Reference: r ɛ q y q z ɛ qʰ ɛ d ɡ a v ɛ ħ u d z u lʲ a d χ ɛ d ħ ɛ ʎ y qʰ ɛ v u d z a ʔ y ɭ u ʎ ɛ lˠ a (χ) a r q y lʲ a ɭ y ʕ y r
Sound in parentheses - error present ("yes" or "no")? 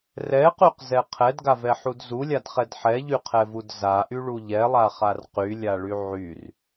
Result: no